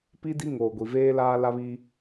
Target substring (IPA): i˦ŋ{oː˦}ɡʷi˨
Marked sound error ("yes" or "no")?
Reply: yes